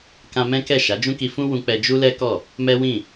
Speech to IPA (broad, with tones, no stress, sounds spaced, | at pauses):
k ã˧ m ɛ̃˦ k ɛ˦˨ ʃ a˨˦ d͡ʒ ũ˦ k i˧ f ũ˦ w ũ˧ k͡p ɛ˧ d͡ʒ u˦ l ɛ˦ k ɔ˦˨ | m ɛ˦ w ĩ˦˨